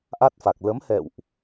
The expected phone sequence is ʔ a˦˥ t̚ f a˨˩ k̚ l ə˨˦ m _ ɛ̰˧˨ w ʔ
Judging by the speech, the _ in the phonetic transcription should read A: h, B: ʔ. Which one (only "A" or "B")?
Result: A